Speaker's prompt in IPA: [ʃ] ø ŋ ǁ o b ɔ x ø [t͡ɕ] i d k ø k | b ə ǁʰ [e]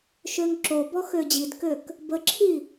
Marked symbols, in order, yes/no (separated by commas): yes, no, no